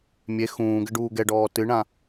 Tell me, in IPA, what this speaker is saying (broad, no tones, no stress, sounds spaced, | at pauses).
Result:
mʲ e x ũː ɡ ɘ ɖ uː ɡ ɛ ɖ ɔː t ɨ ɳ ã